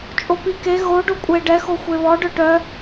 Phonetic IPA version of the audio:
t͡ʃʼ o p i k e ɣ o ɖ o kʷʼ e ɖ ɛ x o xʷ e β ɔ ɖ œ ʈ œ

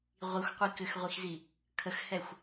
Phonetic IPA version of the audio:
ʁʷ i xʷ qʷ i k ʏ x ʁʷ i x z i | kʰ ə x h ɛ xʷ

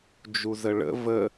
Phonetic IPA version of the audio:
d͡ʒ u z ə ɭ ə̰ v ə

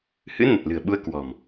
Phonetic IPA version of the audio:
h ɨ̰˧˥ n ə˨˩ t̚ l ɨ̤˨˩ ə̯ ɓ u˧ ə̯ k w ɔ̤˨˩ m

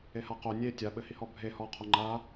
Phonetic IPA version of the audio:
e h a q o nʲ e tʲ a ɓ ɘ h i h ɔ bʱ e h ɔ qʰ o ŋ͡ǃ a

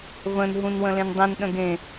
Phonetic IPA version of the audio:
v ə̃ n ɦ ũ n w ə̃ l ẽ n dˤ ĩ n ɗ ə̃ ɡ ẽ

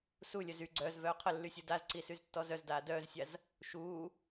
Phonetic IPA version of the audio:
s u lʲ œ z y ɡ͡ǀ œː z v œː qʰ ə lː y sʲ u d a z ǀ i s y z tː ɔ z œ z d aː d œː z sʲ a z | ʃ uː

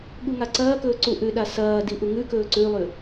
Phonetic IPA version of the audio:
ɠ u ŋ a ǀ ɐː k ɵː ǀ u ʔ ʉ ɗ a s ɐː d i ʔ u ŋ ʉ k ɵː ǀ ʉ lˠ ʉ

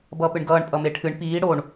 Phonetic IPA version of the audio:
b ʌː p ɨ ɳ ɡ ʌː ɳ pʼ ʌ m e ʈʰ ɨ ɳ p iː ɽ o ɳ

